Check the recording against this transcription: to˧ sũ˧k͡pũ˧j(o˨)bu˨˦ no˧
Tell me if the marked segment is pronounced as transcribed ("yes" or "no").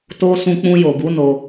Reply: yes